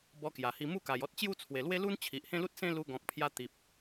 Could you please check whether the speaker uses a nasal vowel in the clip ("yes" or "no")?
yes